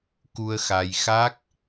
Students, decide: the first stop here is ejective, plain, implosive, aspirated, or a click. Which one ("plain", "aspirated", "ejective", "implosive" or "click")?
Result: plain